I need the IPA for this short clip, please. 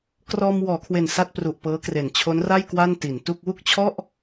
k r ɔː˧ m w ɔː˩˦ kʰ w e˨˩ n s a˥˩ t̚ p r u˨˩ ʔ p ɤː˦˥ k r e˨˩ n t͡ɕʰ o˦˥ n r a˥˩ j k w a˥˩ n t i˩˦ n t u˥˩ k̚ w u˥˩ k̚ t͡ɕʰ ɔ˥˩ ʔ

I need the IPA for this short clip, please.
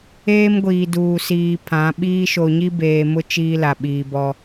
eː˦ m ɡʷ iː˨ d uː˨ s iː˨ pʰ ã˨˦ ɓ iː˦ ʃ o˨ ɲ i˦ b eː˨ m ʊ˦ t͡ʃ iː˦ l a˨ ɓ iː˨ b ɔ˦

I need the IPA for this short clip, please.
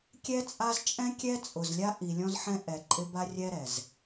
kʲ ɛ˦ t͡sʼ a˦ z t͡ʃʼ ɛ̃˦ kʲ ɛ˦ t͡sʼ ʊ˨ z lʲ a˦ ʔ i˨ lʲ ɔ̃˦ z ħ ɛ̃˦ ʔ ɛ˨ ǃʼ ɪ˦ b a˦ rʲ ɛ˦ ɾ ɛ˨ z

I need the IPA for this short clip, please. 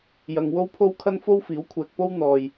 j ɐ˨ ŋ w o˥ w pʰ o˥ w kʰ ɐ˥ n f o˥ w f iː˨˥ w kʷʰ ɛː˨ k̚ p o˥ w n̪ ɔː˨ j

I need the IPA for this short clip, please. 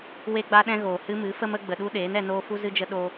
w e˦ ɡ͡b a˦ ɗ ɛ̃˦ ɣ oː˨ h ɨ˦ m ɨ˨˦ f ə˦ m ə˨˦ ɡ͡b ə˨ ɗ u˦ ɗ eː˨˦ n ɛ˧ n oː˦ f u˦ z ɨ˦ d͡ʒ ə˦ ɗ o˧

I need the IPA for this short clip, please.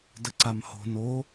d ə ǀ a m h o̤ n o

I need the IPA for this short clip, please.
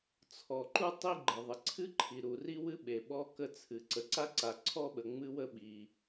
t͡sʰ ɔ˩ ǃ u˥ tˤ i˥ ɡ͡ǃ ə˩ ðˤ ə˩ ǀʰ ɨ˥ ǃʰ i˩ ɾ u˩ r i˥ w ɨ˥ ɓ e˩ ɓ ɔ˥ k ə˥ t͡sʰ ɨ˩ ǀ ə˩ ǀ a˥ ǀ a˩ ǀʰ ɔ˥ ɓ ə˩ ŋ͡m ɨ˥ w ə˥ ɓ i˩

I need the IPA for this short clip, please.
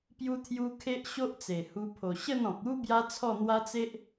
p j u˧ t̪ʰ j u˧ kʰ e˦ ʔ ɕ o˦ ʔ t͡s e˨˩ h u˧ pʰ o˨˩ ɕ ə˥˧ n ɔ̃˨ k̚ u˦ b j a˦ t͡sʰ ɔ˥˧ n̪ w a˦ t͡s e˦ ʔ

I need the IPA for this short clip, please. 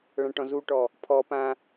ɭ ã ʈ ɔ̃ z u ʈ ɔ | pʰ ɔ p ã

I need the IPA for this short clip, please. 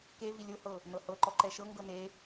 k e v i lʲ o h ɤ | n ɤ h ɤ ǃ ɔ ǃ ɛ ʃ ɤ ŋ ɡ ɤ n e

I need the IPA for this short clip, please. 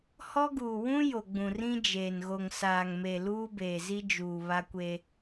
h ɔ˦ ɡ uː˨ w ũ˦ j o˨ ɡ͡b ũ˨ r ĩ˦ d͡ʒ eː˨ n ɣ o˨ ŋ s aː˨ ŋ m e˨ l uː˦ b eː˨ z i˦ d͡ʒ uː˨ β a˦ kʷ e˦

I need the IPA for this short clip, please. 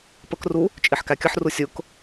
p ə k r u | t͡ʃʼ i ħ k æ kʲ ə ħ r u sʲ ʊ k

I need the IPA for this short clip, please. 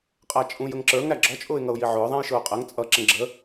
qʼ æ t͡ʃʼ ũ j ə ŋ ǁ ə˞ ŋ ɾ æ ɡ͡ǁ ɔ t͡ʃʼ ʊː ɪ̯ ŋ ʌ ʊ̯ j i ʕ ʊː ðˤ æ̃ j ʃ ʊː qʼ ɛ ŋ t͡sʼ ʌ ǁ ə̃ ɡ͡ǁ ə

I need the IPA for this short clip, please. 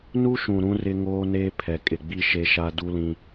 n u˦ ʃ ũ˨ ɾ ũ˦ r ɪ˦ ŋ oː˦ n eː˦ pʰ ɛ˨ kʼ ɪ˨ ɡ͡b i˦ ʃ e˦ ʃ a˦ d u˦ l ĩ˦

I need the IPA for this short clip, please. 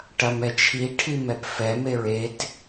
ʈ ɐ m ɛ t͡ʃʰ i ʈʰ i m ɛ p f ɛ m e ɹ e t

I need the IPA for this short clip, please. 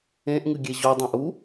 ẽ ʔ ŋ ɨ ɡʲ e ʑ o dˤ ã ʔ u

